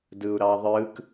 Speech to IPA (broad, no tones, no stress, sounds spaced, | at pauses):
d ɯ u̯ ɾ ɑ ðˤ ɯ k